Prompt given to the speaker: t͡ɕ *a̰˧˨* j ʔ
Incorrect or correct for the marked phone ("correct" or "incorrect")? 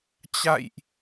correct